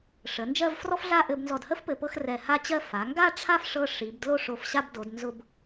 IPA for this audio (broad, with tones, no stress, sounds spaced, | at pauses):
ʂ ə˩˧ n d͡ʒ ɜ˥˧ v f r ɔ˥ f ɮ a˥˧ ʔ ɘ˧ b n z ɔ˧˩ d h ə˥ f p ɘ˧ p ɤ˥˧ x r ɛ˧˩ h a˥˧ t͡ɕ ɜ˧ f a˩˧ ŋ ɡ a˥˧ ʈ͡ʂʰ a˥˧ f ʂ ɤ˧ ʂ i˩˧ b d l o˥˧ ʂ o˧˩ f ɕ a˥˧ b d o˩˧ d n z ʊ˧ b